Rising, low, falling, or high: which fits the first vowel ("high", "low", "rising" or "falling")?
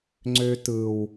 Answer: high